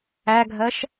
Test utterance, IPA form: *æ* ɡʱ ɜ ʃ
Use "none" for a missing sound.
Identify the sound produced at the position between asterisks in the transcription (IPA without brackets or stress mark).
æ